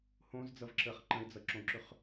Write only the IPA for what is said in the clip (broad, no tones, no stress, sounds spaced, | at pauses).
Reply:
h õ z d͡z ʌ v ǁ əː χ ǃ ə̃ ɪ̯ d͡z ʌ ǁ õ ǁ ʏ χ